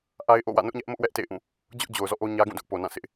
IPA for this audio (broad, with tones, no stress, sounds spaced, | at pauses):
ʔ a˦ ɪ̯ ʔ o̰˦˨ w ä̰˦˨ n ʊ˦ ʔ ɲ ɛ˦ ʔ m ʊ˦ ʔ w ɛ˦ ʔ t ḛ˦˨ ɪ̯ ʔ ũ˦˨ | d͡ʑ ʊ˦ ʔ d͡ʑ o˨ ʊ̯ z ɔ̰˦˨ ʔ o˦ ɲ ä˦ ɡ ũ˦˨ d ʊ˦ ʔ p o˨ n ã˦˨ sʰ ɪ˦ ʔ